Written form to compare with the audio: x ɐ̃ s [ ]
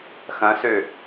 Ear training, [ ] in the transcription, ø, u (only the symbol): ø